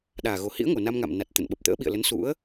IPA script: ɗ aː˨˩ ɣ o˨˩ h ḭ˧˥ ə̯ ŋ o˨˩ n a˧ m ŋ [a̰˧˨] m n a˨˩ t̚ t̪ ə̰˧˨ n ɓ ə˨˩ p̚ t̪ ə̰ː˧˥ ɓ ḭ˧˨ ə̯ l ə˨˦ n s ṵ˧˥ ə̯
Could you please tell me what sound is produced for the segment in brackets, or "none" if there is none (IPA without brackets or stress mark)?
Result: a̰˧˨